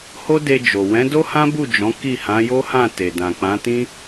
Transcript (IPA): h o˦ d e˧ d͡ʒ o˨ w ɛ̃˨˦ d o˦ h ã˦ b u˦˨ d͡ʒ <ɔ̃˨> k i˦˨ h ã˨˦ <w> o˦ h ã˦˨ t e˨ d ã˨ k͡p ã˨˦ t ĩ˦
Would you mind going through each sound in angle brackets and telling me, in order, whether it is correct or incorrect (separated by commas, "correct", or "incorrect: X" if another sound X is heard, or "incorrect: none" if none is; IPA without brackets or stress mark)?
incorrect: ɔ̃˨˦, incorrect: j